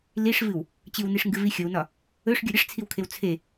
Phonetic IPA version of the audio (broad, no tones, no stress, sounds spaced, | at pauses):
l i ʂ v ɨ w | t͡ɕ ɨ w n i ʂ ŋ ɡ ɨ v i xʲ ɵ w n ɒ | ɵ ʂ ɡʲ ɵ ɾʲ ə ʂ t͡sʰ i w kʰ e w t͡sʰ e